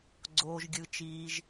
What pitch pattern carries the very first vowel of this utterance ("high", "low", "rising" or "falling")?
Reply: high